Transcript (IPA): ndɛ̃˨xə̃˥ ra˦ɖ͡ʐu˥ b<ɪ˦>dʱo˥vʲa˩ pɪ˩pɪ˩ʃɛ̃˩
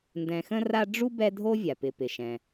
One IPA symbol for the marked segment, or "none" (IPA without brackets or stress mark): ɛ˦